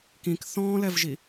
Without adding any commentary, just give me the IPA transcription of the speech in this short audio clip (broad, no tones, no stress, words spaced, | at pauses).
kĩk θɔ̃ːlɛvʒi